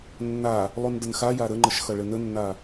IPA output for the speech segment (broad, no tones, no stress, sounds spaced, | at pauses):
nː a | lˠ u n d ə n x a j a ɾ ə ŋ͡ǃ ə ʃ x ʌ ɭ ɘ n ə nː a